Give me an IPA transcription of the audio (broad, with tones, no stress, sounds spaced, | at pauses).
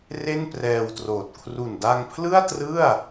r e˥˩ n p r ɛː˧ w t r oː˨˩ t̚ kʰ r u˨˩ n d a˧ ŋ pʰ l ɯ˥˩ a̯ t r ɯ˥˩ a̯